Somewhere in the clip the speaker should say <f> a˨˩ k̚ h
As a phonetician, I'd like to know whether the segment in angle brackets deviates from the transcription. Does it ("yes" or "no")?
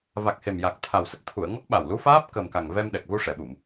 yes